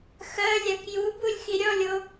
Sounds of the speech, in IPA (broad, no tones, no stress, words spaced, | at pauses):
xɜlʲak jubulʲ xiɾʲɔlʲo